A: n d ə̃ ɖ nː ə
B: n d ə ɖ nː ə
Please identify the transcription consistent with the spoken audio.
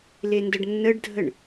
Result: B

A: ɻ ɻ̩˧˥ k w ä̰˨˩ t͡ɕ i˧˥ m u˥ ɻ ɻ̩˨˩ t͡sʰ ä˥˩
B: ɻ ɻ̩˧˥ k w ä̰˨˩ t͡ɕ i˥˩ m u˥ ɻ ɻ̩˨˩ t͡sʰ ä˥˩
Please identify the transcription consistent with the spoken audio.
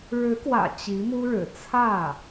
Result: A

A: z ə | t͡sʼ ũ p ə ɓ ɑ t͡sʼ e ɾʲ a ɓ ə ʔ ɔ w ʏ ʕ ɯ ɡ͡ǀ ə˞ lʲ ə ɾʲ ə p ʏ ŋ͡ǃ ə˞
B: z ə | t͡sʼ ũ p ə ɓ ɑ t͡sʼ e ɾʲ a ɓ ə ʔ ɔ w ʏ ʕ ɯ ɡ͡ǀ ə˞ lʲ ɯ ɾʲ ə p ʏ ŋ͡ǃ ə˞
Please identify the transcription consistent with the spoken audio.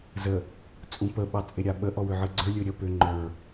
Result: B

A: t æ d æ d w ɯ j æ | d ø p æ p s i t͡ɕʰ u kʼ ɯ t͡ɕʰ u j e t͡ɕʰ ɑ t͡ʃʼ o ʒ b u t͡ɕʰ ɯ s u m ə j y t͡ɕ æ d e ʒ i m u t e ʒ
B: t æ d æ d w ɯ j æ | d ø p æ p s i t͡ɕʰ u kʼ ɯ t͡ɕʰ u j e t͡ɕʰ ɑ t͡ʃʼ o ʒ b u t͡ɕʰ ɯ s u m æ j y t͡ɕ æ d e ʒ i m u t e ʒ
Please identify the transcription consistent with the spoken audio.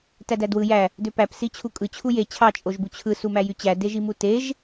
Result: B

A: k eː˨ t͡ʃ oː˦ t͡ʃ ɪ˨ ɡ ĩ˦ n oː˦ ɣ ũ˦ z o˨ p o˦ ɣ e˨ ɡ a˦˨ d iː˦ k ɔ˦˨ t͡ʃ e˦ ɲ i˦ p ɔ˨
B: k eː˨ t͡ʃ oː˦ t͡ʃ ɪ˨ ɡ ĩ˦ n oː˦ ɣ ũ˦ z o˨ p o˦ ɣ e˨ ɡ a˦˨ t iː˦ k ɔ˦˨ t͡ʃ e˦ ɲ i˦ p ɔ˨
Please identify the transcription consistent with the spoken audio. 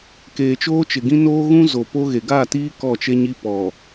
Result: B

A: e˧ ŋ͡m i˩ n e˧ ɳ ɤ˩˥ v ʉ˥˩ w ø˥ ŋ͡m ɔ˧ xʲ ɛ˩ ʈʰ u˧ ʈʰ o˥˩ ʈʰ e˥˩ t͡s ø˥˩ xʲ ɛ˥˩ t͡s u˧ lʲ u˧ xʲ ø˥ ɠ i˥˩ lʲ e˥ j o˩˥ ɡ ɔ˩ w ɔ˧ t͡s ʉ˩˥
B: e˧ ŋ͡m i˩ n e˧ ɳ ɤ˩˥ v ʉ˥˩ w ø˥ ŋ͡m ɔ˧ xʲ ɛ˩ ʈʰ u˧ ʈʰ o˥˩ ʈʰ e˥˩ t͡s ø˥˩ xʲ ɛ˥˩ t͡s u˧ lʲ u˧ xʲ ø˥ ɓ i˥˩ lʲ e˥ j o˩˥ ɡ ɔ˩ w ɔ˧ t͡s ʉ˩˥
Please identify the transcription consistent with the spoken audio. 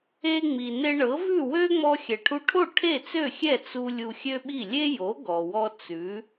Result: B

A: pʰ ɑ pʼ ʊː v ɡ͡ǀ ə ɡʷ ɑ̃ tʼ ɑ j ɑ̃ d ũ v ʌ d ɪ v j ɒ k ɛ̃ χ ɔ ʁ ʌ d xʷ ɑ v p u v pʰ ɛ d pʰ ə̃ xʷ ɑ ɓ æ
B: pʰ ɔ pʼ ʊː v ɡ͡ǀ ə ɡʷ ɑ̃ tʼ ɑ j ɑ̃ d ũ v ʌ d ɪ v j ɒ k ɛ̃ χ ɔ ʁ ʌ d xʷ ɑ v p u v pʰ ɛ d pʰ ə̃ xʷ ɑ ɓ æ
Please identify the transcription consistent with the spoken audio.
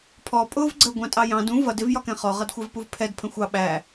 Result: B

